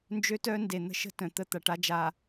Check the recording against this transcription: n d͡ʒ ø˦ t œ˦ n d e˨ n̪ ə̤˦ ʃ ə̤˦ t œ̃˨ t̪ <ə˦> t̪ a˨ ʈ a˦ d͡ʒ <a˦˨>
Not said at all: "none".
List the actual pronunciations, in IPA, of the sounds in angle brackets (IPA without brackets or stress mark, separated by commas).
ə˦, a˨